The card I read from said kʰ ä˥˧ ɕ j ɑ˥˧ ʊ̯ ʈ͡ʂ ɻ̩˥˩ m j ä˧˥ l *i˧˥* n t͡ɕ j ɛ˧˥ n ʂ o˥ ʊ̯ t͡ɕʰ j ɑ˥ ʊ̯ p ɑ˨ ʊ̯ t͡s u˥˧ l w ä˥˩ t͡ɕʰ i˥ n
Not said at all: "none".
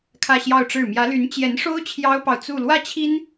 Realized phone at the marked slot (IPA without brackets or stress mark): y˧˥